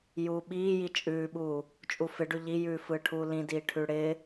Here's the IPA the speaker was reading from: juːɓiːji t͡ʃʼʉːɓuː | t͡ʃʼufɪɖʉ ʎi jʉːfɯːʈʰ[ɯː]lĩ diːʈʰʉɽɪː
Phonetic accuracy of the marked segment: incorrect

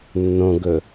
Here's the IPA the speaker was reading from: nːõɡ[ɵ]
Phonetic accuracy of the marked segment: correct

